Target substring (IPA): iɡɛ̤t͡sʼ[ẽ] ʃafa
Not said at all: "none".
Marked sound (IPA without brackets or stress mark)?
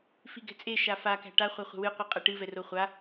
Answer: e